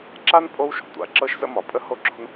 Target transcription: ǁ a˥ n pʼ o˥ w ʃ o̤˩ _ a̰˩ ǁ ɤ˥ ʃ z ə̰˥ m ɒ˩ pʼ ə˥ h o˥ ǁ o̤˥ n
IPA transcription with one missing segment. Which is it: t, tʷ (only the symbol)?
tʷ